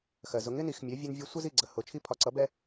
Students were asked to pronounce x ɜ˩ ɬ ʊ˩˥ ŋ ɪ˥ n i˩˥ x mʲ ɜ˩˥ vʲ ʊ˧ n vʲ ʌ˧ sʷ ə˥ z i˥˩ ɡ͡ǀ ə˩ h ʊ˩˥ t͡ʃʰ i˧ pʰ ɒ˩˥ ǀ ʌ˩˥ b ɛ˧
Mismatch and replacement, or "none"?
ɬ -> z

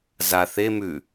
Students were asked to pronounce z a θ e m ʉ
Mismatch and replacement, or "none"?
none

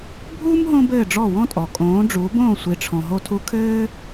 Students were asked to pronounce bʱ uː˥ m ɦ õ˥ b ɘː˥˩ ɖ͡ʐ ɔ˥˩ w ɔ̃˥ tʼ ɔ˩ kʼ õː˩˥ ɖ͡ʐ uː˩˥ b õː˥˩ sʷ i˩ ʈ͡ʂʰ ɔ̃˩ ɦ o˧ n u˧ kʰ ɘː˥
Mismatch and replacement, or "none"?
n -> tʰ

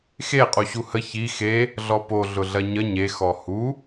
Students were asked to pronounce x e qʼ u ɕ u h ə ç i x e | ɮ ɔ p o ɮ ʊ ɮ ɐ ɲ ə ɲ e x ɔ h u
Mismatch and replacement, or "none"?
none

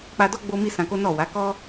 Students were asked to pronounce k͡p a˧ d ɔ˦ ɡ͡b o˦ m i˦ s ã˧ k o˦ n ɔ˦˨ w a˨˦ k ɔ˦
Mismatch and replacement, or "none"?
none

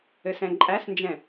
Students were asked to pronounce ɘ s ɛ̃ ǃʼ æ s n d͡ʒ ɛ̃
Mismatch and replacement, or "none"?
none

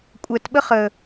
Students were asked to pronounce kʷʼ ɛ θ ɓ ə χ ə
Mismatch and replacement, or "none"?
θ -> t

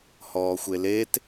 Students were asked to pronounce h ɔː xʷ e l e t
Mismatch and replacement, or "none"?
none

